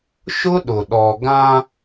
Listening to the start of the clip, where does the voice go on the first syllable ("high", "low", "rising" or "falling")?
high